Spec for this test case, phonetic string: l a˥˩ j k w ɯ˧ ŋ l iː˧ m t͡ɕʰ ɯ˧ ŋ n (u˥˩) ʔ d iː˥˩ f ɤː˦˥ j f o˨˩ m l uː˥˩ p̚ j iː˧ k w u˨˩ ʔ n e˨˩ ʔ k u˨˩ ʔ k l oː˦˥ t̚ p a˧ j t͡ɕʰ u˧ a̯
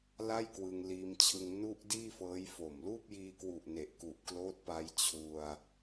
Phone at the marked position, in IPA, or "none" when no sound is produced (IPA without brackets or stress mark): u˥˩